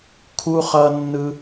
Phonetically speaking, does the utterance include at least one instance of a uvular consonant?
yes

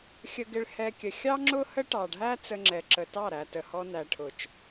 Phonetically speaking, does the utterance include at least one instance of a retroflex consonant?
yes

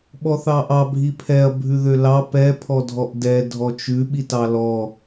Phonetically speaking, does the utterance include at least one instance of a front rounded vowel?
yes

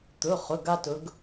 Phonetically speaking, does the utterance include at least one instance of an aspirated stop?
no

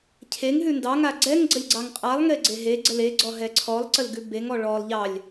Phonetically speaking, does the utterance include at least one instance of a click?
yes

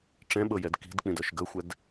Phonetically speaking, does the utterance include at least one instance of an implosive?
yes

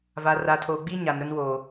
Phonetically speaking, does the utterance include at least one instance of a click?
no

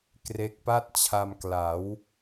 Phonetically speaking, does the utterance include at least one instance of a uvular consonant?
no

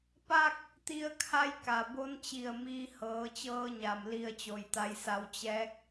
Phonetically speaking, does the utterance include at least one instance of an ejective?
no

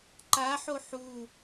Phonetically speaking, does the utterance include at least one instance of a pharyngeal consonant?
yes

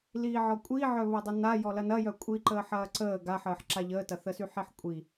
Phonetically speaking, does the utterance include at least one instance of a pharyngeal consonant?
yes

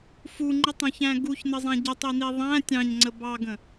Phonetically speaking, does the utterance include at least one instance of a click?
yes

